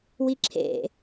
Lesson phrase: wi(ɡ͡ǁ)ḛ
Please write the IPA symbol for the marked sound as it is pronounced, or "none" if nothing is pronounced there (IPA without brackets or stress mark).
ǁʰ